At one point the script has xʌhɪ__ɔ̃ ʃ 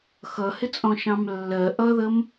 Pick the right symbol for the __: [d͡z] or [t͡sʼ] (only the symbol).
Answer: t͡sʼ